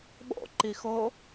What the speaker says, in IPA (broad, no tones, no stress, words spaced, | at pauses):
ɓo̰ǃixo